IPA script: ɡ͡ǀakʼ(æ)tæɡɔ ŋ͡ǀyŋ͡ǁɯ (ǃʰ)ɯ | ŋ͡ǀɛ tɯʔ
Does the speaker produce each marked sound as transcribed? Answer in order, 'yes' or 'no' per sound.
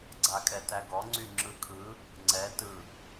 no, no

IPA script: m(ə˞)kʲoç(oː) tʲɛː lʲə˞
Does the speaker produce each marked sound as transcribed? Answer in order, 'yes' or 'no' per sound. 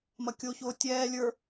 no, yes

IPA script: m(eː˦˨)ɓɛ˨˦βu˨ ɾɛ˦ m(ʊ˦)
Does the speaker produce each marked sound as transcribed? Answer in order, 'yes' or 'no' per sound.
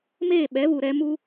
yes, no

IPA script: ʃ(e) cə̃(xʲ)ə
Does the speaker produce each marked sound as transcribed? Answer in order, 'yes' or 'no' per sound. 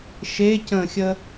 yes, yes

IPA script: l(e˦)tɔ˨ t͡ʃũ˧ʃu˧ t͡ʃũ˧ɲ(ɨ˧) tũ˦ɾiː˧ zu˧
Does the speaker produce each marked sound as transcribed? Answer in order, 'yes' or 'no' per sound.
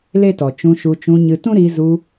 yes, yes

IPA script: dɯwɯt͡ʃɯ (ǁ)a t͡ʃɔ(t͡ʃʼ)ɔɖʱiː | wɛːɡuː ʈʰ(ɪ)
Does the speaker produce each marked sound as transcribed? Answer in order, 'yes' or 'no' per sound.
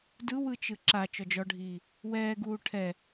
yes, no, no

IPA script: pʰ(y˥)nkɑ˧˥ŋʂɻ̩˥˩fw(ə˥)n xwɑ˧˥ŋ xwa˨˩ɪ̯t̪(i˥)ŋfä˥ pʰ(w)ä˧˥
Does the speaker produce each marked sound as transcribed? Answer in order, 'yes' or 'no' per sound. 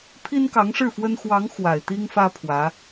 no, yes, yes, yes

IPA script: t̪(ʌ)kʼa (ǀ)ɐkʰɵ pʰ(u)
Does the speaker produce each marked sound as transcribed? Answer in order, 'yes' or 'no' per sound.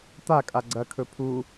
no, no, yes

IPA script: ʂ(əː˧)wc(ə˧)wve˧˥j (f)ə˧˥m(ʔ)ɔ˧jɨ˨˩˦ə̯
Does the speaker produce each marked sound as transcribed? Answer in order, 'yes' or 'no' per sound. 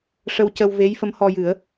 no, yes, yes, no

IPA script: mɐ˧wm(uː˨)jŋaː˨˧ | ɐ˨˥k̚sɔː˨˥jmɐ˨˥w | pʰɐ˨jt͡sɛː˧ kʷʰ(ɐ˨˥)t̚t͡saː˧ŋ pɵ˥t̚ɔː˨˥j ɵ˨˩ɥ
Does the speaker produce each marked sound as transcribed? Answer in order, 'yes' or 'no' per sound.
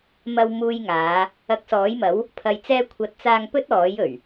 no, yes

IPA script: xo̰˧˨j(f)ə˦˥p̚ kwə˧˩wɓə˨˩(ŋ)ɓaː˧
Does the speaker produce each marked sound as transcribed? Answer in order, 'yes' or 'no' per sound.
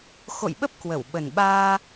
no, no

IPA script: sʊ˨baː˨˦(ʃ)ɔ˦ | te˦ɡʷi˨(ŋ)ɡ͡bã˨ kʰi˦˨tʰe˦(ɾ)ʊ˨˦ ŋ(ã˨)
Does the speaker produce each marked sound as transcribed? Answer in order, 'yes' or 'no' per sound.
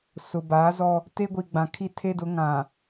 no, no, no, yes

